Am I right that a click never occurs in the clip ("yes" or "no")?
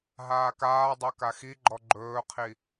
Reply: no